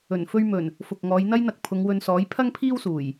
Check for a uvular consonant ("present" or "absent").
absent